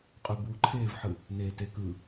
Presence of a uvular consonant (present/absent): present